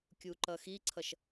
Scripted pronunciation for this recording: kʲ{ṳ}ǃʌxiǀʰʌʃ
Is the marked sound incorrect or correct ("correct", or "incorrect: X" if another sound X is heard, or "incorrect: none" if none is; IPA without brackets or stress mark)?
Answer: incorrect: u